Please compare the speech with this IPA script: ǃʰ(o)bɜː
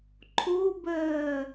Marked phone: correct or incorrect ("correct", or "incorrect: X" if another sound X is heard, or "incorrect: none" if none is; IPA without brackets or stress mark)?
correct